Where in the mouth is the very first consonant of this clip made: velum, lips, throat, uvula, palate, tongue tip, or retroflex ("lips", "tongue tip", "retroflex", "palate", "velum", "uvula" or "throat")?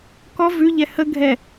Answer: velum